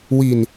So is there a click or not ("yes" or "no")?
no